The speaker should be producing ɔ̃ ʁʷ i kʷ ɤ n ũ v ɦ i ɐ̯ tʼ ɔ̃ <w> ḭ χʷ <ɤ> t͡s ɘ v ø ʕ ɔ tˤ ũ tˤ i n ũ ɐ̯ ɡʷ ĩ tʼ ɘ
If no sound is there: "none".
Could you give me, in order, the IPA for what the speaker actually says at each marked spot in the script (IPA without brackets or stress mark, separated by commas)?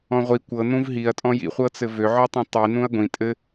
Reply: j, ɤ